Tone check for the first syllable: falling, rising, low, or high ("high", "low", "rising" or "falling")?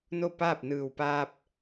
falling